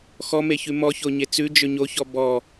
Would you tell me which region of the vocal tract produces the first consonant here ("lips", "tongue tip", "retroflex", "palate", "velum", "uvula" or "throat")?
velum